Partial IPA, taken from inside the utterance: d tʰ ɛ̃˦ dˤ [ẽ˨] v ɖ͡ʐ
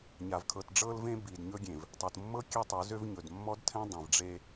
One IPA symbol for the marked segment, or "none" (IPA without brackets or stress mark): ẽ˨